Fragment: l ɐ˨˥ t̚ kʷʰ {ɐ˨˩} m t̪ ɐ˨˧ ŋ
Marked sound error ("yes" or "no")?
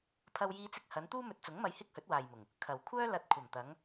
no